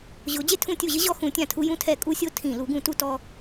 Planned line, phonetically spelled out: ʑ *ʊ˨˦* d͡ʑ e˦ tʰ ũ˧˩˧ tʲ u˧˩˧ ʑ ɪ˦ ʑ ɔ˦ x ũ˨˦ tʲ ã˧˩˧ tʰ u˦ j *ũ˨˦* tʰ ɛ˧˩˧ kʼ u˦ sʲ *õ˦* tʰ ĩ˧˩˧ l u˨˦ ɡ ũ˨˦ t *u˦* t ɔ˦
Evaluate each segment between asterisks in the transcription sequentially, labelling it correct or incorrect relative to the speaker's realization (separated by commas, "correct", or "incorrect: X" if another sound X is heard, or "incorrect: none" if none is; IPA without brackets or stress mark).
correct, incorrect: ũ˦, incorrect: o˦, correct